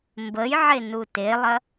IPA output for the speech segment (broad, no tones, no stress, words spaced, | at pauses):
mbəjʕe nutelˠɐ